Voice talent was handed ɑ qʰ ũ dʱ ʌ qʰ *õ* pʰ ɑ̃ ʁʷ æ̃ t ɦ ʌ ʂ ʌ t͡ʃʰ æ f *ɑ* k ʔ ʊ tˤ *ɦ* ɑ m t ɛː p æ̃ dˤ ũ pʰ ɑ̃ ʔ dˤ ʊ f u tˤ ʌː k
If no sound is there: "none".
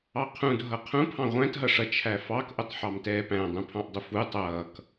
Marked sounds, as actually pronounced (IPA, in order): ũ, ɑ, ħ

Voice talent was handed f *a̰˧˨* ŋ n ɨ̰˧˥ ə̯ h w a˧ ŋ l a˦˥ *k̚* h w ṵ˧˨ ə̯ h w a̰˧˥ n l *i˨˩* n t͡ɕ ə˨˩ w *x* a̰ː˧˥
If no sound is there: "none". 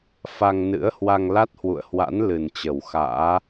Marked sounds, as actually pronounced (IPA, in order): a˧, t̚, ɨ˨˩, x

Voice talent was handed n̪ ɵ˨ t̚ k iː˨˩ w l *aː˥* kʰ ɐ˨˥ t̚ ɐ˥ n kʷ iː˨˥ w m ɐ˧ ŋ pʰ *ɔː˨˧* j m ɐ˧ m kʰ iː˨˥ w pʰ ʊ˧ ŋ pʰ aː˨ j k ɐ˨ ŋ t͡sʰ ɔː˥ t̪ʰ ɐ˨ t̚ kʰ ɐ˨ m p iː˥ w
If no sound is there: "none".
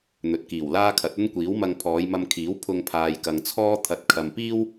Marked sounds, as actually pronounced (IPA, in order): aː˥, ɔː˨˧

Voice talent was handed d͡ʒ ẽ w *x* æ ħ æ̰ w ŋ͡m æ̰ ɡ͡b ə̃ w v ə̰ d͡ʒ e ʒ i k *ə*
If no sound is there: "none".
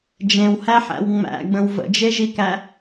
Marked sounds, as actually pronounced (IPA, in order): h, æ

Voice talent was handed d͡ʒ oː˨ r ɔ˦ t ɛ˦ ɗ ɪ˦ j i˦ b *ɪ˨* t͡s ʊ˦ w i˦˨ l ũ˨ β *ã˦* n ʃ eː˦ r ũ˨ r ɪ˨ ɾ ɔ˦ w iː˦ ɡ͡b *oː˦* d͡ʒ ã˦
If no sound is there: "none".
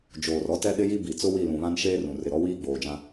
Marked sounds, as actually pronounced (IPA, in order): i˨, ã˦, oː˨

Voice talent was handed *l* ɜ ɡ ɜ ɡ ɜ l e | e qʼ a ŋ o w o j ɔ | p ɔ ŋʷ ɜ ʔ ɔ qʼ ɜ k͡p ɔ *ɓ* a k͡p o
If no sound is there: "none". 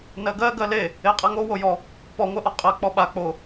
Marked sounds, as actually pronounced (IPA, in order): n, ɓ

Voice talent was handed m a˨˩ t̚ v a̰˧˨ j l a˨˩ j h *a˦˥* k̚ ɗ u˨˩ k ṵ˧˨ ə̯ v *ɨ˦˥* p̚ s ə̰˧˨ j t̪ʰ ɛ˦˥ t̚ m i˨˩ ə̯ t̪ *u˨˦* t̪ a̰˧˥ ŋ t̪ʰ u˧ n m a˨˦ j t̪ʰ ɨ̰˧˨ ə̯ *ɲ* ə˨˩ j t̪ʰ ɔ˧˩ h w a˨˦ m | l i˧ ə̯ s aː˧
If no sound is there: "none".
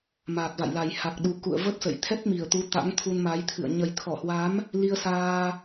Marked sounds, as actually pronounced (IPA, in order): a˨˩, ə˦˥, u˨˦, ɲ

